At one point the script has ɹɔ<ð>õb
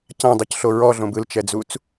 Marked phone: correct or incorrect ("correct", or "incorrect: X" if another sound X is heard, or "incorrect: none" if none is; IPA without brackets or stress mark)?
incorrect: ɮ